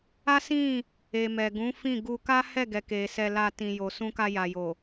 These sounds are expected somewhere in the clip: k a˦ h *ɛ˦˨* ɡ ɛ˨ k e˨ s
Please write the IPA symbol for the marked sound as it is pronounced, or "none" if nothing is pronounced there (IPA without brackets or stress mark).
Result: ɛ˦˨